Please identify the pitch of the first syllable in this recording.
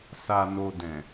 low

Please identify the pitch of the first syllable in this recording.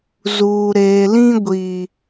low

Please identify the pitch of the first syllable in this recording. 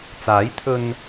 rising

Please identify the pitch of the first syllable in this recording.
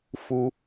high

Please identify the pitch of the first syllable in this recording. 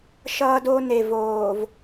high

